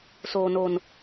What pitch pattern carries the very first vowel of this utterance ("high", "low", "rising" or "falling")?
low